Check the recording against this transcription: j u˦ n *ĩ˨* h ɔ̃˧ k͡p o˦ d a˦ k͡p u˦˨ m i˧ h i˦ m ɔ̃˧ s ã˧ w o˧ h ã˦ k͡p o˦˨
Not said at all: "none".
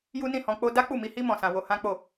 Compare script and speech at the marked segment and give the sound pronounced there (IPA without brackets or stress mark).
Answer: ĩ˦˨